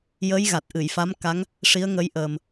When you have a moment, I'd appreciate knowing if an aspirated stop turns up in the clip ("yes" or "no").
no